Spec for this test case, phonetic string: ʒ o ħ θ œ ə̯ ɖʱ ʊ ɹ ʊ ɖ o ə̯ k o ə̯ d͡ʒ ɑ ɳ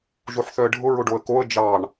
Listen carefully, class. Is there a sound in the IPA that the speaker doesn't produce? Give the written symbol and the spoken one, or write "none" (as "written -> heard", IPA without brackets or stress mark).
none